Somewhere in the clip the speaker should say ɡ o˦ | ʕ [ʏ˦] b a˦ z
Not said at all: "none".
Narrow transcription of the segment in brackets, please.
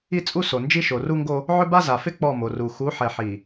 ʏ˦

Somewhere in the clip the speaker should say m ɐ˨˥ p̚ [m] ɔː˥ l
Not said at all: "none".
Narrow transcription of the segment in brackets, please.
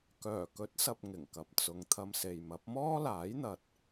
m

